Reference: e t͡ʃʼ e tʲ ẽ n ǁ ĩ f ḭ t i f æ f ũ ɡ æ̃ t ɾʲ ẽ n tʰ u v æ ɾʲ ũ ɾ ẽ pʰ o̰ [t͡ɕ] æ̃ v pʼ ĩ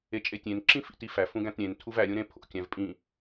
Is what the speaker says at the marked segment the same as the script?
no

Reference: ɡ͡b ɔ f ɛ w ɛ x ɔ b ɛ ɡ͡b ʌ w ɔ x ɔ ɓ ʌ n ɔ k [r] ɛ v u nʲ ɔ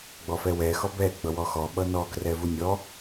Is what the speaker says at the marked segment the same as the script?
yes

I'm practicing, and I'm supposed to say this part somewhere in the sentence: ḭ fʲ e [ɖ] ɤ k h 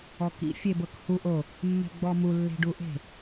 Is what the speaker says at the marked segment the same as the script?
no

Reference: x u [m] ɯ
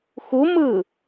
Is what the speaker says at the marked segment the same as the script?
yes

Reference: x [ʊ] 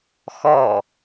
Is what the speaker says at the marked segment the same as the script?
no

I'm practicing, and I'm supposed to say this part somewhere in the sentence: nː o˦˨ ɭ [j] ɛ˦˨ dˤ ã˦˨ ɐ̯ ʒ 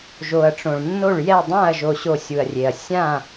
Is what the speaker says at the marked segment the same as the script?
yes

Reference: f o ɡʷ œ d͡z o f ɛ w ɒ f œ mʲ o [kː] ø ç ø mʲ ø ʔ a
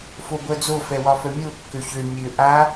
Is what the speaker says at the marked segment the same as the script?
yes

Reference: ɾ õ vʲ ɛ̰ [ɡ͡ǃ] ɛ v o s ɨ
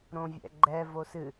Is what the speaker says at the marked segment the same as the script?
yes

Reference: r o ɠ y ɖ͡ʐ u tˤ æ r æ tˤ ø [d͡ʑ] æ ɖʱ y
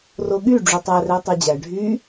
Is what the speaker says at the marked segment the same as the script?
yes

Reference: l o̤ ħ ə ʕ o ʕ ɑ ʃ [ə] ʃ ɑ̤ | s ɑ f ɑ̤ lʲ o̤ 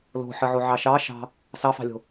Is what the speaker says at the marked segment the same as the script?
no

